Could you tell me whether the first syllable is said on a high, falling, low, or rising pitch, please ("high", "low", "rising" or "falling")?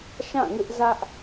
falling